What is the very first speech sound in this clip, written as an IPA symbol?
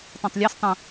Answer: tˤ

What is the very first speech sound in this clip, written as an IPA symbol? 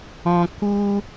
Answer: ɔ̃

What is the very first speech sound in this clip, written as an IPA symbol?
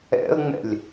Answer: ɛ̰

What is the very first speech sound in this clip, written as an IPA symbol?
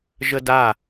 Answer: ʒ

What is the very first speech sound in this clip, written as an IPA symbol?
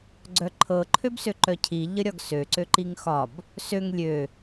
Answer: ɡ͡ǀ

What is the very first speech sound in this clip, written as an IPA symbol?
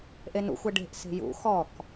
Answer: ʔ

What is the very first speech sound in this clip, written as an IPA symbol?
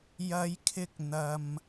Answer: j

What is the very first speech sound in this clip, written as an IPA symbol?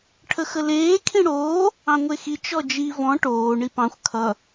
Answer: ʈʰ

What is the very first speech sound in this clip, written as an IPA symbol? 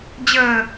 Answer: d͡ʑ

